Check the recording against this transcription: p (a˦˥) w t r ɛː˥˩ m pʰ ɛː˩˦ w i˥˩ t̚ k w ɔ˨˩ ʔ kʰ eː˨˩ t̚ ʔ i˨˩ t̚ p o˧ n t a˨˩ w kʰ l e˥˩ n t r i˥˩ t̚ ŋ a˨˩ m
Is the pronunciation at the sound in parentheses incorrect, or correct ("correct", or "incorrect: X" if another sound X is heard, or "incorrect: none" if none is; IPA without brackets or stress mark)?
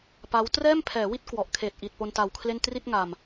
correct